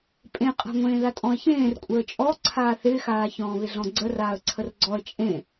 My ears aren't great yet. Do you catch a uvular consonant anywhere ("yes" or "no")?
yes